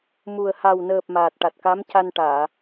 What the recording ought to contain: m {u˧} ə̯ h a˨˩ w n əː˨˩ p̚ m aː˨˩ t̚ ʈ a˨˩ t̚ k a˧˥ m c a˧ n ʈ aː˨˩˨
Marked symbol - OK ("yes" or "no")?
no